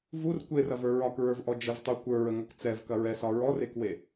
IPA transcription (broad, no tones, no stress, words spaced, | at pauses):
vur kʷerɐvə˞ ɹɒkɹə˞vʔɔ d͡ʒəvtˤu kʷə˞ɹəŋɐk t͡sɛvkɐɹɛsɒ ɹɔrekwe